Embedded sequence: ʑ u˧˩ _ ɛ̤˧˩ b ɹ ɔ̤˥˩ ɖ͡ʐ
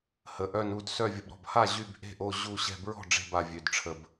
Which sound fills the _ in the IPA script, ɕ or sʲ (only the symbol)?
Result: ɕ